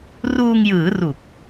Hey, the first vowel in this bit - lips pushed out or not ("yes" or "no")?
yes